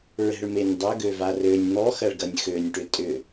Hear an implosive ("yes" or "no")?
no